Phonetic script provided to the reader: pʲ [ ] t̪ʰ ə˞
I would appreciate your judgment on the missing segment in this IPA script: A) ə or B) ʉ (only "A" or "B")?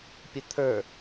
A